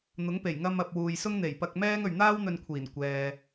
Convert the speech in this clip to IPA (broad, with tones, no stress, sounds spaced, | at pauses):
n̪ ʊ˨˥ ŋ p e˨˩ j ŋ ɐ˧ m ɐ˨ p̚ w uː˨ j s ʊ˥ ŋ n̪ e˨˩ j p ɐ˧ k̚ m ɛː˥ ŋ ɵ˨ ɥ n̪ aː˥ w n̪ ɵ˧ n kʷʰ iː˨˩ n kʷ ɛː˨